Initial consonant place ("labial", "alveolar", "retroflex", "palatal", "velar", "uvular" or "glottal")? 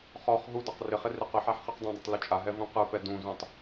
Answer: uvular